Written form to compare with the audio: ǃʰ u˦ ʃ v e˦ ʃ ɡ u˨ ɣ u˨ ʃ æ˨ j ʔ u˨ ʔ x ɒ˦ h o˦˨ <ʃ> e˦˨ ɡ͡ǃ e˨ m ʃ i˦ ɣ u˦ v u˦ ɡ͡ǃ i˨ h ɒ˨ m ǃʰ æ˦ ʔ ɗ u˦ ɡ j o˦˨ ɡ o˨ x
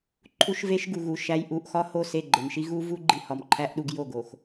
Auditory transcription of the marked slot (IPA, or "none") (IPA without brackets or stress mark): s